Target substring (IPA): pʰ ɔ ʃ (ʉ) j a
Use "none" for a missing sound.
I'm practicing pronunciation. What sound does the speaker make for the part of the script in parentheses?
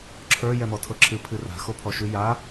ʉ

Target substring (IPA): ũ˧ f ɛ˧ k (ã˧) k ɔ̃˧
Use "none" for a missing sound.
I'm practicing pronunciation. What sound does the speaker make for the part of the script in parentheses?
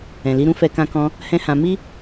ã˧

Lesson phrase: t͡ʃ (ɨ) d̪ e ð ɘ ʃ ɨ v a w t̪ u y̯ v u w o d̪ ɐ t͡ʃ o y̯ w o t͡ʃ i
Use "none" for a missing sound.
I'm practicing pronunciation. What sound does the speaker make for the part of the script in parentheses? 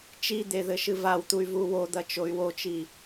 i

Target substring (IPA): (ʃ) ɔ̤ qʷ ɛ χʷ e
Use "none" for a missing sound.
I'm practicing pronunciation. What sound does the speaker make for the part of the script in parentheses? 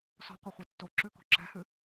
s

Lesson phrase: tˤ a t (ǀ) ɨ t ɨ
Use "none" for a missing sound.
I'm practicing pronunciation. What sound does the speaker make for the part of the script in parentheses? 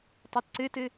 ǀ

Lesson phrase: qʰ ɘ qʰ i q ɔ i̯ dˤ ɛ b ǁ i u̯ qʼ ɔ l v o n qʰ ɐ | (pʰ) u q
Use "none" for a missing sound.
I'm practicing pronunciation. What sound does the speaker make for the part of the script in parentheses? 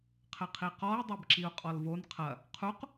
qʰ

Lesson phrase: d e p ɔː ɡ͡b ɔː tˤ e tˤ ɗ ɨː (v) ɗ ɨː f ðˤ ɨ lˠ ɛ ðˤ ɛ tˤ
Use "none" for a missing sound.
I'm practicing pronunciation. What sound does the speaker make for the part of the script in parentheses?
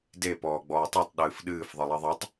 f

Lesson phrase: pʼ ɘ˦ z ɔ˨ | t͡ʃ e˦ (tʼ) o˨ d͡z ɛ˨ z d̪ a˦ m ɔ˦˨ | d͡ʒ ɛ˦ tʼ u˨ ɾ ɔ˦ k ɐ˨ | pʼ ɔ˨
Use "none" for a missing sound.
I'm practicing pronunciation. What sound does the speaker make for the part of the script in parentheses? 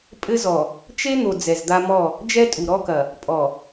n̪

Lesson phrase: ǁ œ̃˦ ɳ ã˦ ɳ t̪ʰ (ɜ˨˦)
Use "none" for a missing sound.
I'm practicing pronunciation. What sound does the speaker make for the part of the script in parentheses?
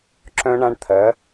ɜ˨˦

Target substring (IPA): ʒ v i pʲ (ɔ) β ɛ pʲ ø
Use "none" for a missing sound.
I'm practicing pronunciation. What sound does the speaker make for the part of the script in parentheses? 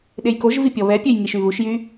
ɔ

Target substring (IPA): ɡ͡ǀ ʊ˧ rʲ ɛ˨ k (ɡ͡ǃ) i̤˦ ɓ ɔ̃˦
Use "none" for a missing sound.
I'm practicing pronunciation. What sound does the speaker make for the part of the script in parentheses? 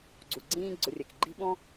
ɡ͡ǃ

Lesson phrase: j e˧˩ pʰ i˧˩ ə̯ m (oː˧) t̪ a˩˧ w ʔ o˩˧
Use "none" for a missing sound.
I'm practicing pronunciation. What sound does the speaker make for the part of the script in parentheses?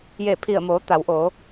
oː˩˧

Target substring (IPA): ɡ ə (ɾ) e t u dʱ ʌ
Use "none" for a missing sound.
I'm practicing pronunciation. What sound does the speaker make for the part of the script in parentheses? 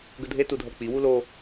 dʱ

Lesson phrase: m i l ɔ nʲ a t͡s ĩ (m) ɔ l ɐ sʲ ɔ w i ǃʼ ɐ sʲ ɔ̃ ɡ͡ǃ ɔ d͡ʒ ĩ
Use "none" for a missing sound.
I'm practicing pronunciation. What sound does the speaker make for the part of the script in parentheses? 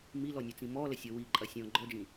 m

